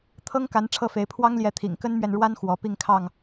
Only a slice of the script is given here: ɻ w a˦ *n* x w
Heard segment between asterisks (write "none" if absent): n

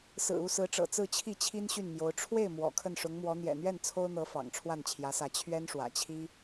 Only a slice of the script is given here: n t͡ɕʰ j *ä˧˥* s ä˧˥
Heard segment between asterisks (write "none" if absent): ä˧˥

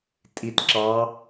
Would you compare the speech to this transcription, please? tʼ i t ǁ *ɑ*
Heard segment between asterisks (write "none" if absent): ɑ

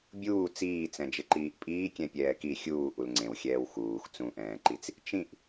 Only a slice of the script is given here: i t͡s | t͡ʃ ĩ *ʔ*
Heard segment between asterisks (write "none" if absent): ʔ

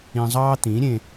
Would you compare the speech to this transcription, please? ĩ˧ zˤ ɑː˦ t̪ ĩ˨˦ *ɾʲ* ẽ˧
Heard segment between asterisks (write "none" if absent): ɾʲ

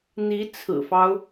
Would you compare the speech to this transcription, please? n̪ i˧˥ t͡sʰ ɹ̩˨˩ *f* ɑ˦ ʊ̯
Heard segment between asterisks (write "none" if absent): f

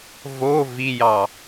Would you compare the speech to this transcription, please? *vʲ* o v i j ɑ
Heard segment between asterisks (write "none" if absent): v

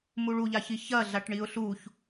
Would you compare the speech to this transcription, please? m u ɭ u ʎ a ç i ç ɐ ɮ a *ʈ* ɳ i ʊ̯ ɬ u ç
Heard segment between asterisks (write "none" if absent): ʈ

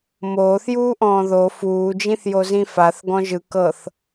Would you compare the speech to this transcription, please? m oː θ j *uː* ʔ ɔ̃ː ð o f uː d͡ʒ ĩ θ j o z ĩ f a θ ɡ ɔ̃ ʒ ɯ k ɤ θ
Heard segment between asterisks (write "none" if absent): uː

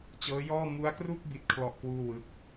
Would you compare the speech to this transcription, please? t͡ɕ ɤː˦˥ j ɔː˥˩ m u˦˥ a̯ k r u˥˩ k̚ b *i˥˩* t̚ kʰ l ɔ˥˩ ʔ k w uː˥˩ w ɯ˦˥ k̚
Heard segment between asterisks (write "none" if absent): i˥˩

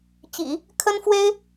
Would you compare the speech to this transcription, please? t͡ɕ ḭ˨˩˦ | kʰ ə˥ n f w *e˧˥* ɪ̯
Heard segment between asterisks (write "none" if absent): e˥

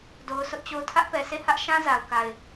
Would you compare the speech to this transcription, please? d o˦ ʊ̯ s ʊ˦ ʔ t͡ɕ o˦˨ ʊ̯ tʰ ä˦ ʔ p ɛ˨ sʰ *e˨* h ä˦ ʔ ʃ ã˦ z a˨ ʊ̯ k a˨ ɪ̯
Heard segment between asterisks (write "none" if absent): e˦˨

